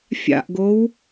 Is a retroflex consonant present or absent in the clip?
absent